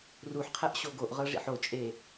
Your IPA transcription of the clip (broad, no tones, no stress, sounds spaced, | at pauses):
r u ħ qʰ ɛ ʔ ɕ o ɡ o ʔ ʁ ɤ ʐ ḭ ħ o t͡ʃʼ e